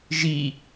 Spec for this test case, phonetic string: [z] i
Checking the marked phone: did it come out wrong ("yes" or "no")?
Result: yes